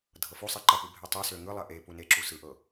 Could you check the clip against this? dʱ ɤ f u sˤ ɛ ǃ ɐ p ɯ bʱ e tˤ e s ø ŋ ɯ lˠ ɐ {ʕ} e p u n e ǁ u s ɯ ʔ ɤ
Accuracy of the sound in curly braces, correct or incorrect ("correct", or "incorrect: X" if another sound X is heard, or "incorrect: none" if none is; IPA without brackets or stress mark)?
incorrect: ʔ